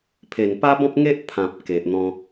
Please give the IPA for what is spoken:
pʰ e˨˩ n p a˦ b ɔ̃˦ p̚ ŋ e˦ ʔ pʰ ã˨ p̚ k e˨ ʔ n̪ ɔ̃˧

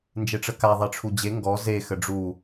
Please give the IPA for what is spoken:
n d͡ʒ e ʈ͡ʂ ə k a ðˤ e ʈ͡ʂʰ u d͡ʑ e ŋ ɡ ɔ z e x ə ɖ͡ʐ u

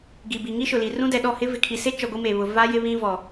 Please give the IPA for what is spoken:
ɡ i˨ b i˨ ŋ i˦ ʃ ʊ˨ l i˨ r ũ˦ d ɛ˨ ɗ ɔ˦˨ h ɪ˦ v ɪ˨ kʰ i˨ s e˦ t͡ʃ ɔ˨ ɡʷ i˦ m e˨ β ʊ˨ v a˦ j ɪ˦ β ĩ˦ v ɔ˨

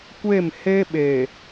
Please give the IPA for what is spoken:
kʷ e˦˨ m h e˦ ɓ e˨

